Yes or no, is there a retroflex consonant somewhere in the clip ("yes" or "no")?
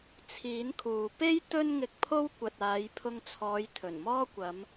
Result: no